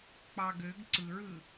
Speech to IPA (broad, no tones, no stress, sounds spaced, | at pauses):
k͡p ɑ ɡ ø ɡ ǀ ɯ ɹ ɯ